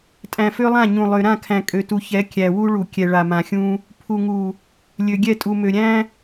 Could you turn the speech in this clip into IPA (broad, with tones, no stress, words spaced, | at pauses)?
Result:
tʼæ̃˨fø˦lˠã˦˨ ɲũ˨lˠø˨ ɾã˦˨kʰæ̃˨kʼø˨tu˨ çɛ˨˦kʲæ˨ wu˦ɭu˨ kʲɛ˨ɭa˨mã˨xʲũ˦ | pʰu˨ŋu˨ | lʲø˨ɡʲɛ˦˨tʼu˨mø˨ ɾʲæ̃˦